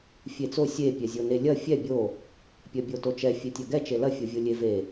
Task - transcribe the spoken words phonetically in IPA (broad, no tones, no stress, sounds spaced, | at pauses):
fʲ e t͡s o sʲ e pʲ ɛ zʲ o n e lʲ ɐ fʲ ɛ bʲ o | pʲ ɐ bʲ o t o t͡ʃ ɛ fʲ e tʲ ɐ ɡ ɛ t͡ʃ e l ɐ fʲ o vʲ o lʲ e v e